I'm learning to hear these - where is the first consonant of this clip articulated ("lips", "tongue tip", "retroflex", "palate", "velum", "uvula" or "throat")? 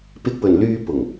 lips